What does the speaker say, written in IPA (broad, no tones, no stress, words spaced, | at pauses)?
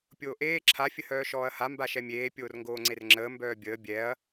pʲoːʔeː ǁʰa fʲəhœːʃɔːɐ̯ha mbaʃɛmʲeː pʲoːrŋɡoːŋ͡ǀerŋ͡ǁəː mbœːbʲəː bʲɛɐ̯